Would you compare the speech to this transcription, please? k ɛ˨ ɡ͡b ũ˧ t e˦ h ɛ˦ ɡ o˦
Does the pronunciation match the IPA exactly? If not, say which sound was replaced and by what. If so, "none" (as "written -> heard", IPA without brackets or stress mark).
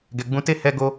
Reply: k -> ɡ